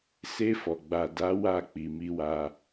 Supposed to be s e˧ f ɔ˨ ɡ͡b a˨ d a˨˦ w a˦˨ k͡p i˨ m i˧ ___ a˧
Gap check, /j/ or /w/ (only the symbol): w